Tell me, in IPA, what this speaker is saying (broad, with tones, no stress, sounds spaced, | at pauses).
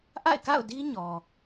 ʔ a̰˦˨ ɪ̯ k a̰˦˨ ʊ̯ d i˦ ɲ ɔ˨